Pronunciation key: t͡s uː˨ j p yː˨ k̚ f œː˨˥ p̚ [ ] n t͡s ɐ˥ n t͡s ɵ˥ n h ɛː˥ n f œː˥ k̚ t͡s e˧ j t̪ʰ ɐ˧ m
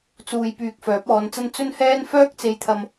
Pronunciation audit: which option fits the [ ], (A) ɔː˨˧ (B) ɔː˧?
A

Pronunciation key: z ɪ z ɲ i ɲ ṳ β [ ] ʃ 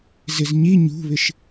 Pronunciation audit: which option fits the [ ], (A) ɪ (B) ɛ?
A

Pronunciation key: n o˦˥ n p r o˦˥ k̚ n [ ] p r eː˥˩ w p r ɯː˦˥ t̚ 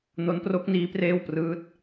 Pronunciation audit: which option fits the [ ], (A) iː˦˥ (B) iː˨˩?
A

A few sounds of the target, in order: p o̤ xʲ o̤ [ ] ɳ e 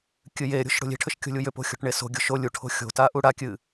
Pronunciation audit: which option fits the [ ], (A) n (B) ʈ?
B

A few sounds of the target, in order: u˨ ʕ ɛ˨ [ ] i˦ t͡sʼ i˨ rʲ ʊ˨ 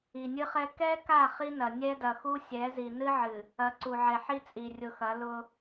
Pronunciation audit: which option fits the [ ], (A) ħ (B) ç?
A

